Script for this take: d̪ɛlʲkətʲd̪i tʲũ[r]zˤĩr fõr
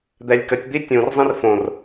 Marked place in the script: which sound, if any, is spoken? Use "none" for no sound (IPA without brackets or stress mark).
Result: r